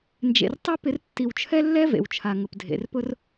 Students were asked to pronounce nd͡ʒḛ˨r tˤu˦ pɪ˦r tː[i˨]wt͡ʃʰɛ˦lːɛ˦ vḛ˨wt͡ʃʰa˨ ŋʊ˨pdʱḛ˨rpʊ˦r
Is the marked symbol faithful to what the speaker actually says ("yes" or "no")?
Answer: yes